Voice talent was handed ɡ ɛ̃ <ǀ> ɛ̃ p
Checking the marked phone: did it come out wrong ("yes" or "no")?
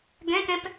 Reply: yes